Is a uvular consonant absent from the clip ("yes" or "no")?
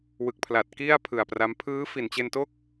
yes